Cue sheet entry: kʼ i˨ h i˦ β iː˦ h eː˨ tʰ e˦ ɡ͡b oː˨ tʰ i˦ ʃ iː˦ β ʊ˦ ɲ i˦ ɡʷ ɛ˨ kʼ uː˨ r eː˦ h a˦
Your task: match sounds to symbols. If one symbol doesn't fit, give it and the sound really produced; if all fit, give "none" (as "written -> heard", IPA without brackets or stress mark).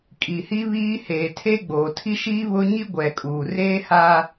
none